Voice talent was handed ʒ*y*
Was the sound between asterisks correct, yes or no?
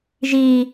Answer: no